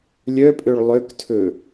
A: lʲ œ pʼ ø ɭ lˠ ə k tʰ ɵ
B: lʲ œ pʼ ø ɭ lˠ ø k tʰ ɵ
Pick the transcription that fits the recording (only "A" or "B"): B